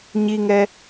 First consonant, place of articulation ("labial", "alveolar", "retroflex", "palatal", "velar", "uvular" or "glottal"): palatal